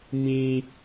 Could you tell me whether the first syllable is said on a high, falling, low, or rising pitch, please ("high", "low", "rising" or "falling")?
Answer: high